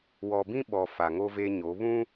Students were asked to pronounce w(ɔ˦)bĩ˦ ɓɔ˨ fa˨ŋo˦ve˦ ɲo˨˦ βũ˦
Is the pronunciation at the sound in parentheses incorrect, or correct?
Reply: incorrect